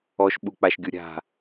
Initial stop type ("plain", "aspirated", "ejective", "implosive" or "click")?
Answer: implosive